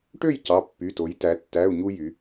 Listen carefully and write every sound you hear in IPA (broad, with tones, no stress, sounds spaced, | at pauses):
ʈ ø˥˨ j c ɑ˩˧˩ pː y˩˧˩ t o˩˧ j t æ˩˧ tː æ˩˧˩ u̯ ɲ u˧ j y˩˧